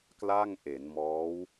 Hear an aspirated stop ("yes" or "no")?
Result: no